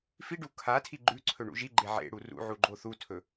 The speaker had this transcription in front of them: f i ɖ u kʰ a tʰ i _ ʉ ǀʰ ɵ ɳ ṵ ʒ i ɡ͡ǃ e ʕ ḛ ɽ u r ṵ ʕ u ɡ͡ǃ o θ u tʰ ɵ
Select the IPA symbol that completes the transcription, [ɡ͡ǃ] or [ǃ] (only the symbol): ɡ͡ǃ